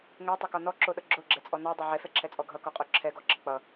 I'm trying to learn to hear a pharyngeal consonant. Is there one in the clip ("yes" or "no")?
yes